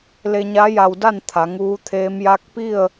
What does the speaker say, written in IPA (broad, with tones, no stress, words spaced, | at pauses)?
le˧ɲa˧˥ ja˧wda˥˨n t̪ʰa˩˧ŋuː˧˥t̪ʰeː˧˥m ja˧˥k̚pi˥˨ə̯